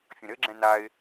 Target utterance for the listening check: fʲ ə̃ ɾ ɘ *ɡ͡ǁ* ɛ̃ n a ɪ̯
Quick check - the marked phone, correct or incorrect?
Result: correct